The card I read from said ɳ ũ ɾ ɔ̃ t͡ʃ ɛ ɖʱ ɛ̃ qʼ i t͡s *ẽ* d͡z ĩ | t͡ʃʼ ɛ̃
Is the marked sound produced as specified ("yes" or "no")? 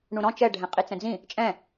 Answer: no